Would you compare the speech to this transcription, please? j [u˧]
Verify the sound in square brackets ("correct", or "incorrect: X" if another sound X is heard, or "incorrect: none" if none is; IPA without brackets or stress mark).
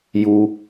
correct